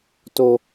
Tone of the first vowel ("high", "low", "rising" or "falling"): low